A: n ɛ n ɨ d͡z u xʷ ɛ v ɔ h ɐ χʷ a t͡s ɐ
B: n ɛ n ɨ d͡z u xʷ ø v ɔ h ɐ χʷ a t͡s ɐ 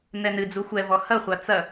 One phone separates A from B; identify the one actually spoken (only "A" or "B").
A